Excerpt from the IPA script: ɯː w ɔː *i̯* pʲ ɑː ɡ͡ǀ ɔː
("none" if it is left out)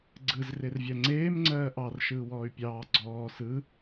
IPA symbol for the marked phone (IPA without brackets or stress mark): y̯